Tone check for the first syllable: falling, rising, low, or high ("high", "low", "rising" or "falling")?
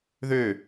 falling